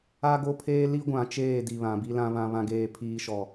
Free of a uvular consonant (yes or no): yes